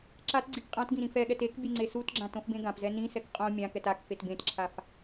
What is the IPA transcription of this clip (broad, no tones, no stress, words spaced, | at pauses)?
ǁatɡ͡ǀik qʼãtɡĩ ɾĩfɛɠɛt ek bʲɯŋ͡ǀesutɡ͡ǁã tõfbẽɡãpzɛ nĩsɛk qʼõ mʲãkɛt ak fetbẽtǁʰaf